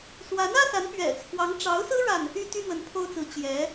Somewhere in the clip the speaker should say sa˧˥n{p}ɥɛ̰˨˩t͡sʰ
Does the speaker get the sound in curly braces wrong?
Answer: no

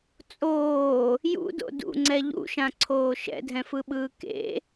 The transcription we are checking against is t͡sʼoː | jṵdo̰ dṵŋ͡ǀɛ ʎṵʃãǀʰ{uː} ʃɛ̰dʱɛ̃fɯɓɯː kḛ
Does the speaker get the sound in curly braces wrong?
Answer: yes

